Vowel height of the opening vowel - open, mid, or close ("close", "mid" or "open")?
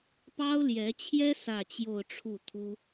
open